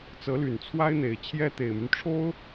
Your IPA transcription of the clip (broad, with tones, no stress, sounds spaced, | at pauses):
t͡s ɤ˧˥ l y˨˩ n t͡sʰ w a˥ ɪ̯ n̪ e˨˩ ɪ̯ t͡ɕʰ j ɛ˥ t̪ e˨˩ ɪ̯ m y˦ n ʈ͡ʂʰ o˥ ʊ̯